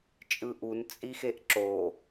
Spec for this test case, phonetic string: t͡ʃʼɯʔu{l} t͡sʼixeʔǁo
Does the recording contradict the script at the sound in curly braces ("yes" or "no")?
yes